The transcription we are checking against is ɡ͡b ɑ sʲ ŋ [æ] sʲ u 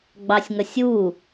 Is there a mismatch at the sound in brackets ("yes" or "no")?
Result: yes